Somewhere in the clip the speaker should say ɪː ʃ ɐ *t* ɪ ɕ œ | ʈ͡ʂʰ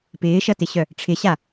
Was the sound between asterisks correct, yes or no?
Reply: yes